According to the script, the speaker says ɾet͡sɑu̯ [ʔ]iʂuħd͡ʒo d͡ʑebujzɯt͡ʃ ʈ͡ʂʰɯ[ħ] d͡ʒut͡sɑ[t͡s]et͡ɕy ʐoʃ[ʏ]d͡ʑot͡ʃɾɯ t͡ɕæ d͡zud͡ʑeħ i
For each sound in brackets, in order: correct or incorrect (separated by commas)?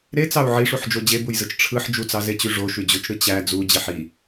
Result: incorrect, correct, incorrect, incorrect